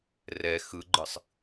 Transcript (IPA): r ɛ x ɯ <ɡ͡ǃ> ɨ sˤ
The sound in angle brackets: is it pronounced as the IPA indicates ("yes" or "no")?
yes